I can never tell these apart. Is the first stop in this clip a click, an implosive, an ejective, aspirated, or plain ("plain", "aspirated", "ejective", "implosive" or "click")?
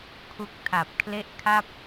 aspirated